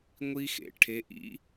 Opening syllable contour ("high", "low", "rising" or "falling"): high